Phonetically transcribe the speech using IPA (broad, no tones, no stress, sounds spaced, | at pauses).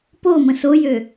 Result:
p o m ə̃ s o j ø